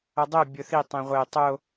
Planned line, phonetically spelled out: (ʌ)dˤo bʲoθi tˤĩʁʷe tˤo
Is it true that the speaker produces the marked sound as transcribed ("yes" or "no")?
yes